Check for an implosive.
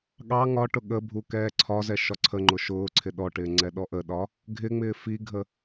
present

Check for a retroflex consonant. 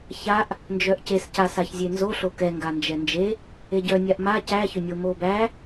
absent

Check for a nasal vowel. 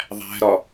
absent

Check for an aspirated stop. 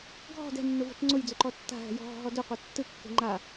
absent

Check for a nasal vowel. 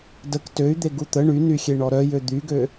absent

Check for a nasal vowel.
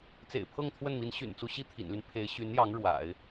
absent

